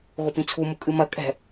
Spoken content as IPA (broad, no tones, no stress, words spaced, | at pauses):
ɣopĩt͡sʰu mukʼɨmɐ kʼɛ̤